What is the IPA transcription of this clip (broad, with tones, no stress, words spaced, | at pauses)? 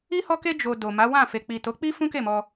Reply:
i˦hɔ˦ke˦ d͡ʒo˧do˨ ma˨˦wã˦˨fe˨ k͡pi˨to˨˦k͡pi˦ fũ˦ke˦˨mɔ˧